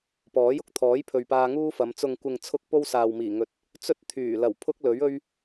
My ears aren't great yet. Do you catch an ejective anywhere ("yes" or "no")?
no